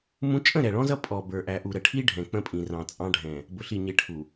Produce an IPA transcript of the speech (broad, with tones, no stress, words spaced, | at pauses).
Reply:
mũ˦ t͡ʃʼə̃˦˨ɾɛ˨ɭɔ̃˦zʌ˦ pʼɔ˨ bə˞˨ ʔæ˨ʔu˨ɾə˨ʈʰi˦ ɖʱɛ̃˨k͡pə̃˦pʼĩ˨rɑ̃˨ t͡sʼɑ̃˦ɖʱɛ̃˨ | bʊ˨ɬi˨ɲɪ˨ ʈʰu˨